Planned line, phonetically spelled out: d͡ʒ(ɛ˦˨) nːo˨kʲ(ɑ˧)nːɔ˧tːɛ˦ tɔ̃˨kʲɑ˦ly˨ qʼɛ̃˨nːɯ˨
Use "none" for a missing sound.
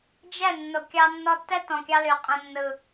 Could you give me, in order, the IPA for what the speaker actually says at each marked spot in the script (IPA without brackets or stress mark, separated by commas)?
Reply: ɛ˦˨, ɑ˧